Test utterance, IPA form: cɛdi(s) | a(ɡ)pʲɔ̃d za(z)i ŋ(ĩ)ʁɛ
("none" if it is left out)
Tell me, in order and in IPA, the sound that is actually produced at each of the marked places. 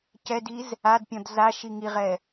z, d, ʃ, i

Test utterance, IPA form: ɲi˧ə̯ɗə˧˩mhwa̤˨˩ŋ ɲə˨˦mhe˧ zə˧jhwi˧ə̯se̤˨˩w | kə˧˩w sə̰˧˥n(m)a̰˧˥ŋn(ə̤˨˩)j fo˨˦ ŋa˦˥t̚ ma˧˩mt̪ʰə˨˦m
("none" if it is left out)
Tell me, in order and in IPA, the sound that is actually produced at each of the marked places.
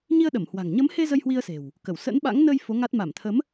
ɓ, ə˧

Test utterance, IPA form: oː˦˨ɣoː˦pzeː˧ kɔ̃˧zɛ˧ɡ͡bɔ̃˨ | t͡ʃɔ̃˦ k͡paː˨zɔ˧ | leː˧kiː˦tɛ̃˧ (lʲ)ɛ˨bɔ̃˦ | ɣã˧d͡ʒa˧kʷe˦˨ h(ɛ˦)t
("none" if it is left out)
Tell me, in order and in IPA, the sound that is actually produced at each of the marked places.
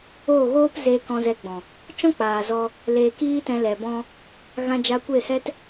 l, ɛ˦

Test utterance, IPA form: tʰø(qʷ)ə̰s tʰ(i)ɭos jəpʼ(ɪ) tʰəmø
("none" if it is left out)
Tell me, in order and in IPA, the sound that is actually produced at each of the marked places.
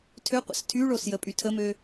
qʷ, y, y

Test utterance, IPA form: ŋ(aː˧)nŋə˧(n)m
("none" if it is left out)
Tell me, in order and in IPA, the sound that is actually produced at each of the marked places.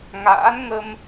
a̰ː˧˥, none

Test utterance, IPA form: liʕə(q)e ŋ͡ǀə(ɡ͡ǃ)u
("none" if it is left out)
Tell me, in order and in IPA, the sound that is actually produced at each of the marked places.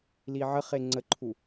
χ, ǃʰ

